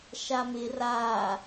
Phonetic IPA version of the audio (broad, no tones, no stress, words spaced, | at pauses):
ʃamɪ ra